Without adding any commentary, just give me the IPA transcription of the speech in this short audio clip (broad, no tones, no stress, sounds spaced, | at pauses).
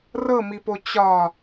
r ɤ m i p o t͡ɕ ɒ